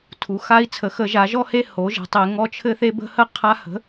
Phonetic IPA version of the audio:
tʰ u˩˧ x a˦ i̯ t͡sʰ ə˩˧ x ə˧˩˧ ʒ a˩˧ ʒ ɔ˥˨ h e˥˨ h o˩˥ ʒ ə̤˩˧ tˤ e˧˩˧ ŋ ɔ˦ t͡ʃʰ ɘ˦ θ e˦ b ə̤˦ h ə˥˨ qʰ a˦ h ə̤˩˥

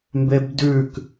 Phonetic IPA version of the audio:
m b e b d ʉ k

